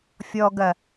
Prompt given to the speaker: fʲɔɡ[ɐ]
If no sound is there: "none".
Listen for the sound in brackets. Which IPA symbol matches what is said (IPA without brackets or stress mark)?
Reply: ɐ